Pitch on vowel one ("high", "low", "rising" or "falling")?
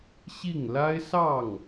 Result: falling